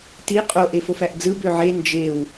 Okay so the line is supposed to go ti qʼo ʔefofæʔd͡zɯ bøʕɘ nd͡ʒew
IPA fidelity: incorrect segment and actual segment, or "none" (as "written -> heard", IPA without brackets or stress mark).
ɘ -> e